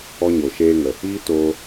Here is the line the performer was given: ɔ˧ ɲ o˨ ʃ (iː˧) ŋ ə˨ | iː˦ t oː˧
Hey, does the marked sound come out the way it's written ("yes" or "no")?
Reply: no